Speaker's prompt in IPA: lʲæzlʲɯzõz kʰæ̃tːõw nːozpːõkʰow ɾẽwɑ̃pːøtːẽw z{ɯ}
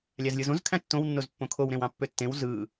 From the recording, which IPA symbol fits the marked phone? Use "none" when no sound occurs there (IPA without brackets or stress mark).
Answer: ɯ